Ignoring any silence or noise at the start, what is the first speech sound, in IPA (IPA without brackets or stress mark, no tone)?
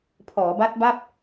pʰ